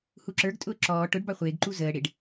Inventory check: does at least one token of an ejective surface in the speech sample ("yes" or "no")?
yes